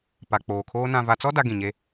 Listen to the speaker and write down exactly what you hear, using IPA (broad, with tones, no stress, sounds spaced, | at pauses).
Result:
p a˨ k͡p oː˨ kʰ oː˦ n ã˨ v a˨ t͡s ɔ˦ d a˦ ɡ ĩ˨ ɲ e˦